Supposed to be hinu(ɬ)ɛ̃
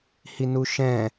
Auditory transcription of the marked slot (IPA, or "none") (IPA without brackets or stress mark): ʃ